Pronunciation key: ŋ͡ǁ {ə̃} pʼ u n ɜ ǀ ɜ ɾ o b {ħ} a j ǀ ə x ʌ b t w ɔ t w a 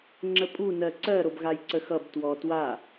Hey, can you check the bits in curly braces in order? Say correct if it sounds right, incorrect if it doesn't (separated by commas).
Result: incorrect, incorrect